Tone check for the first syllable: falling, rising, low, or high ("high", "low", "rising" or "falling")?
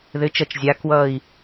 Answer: rising